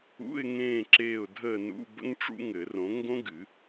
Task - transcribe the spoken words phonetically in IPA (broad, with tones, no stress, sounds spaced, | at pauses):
ṵ˧˥˧ ɪ̯ ŋ ẽː˦˨ ǁ eː˦˨ ʊ̯ dʱ əː˦˨ n ṵ˧˥˧ b ə̰˥ ŋ ʈ͡ʂ ṵ˥ ŋ ɘ˨˩˦ r õ˨˥ ŋ ɡ õ˥ ɡ ɨ˨˩˦